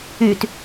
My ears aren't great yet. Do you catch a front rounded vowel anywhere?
yes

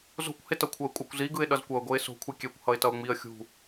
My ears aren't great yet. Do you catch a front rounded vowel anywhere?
no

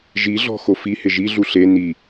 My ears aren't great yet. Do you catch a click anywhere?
no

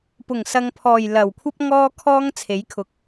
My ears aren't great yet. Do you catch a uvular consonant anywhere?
no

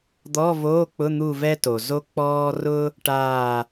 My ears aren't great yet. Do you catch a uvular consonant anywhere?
no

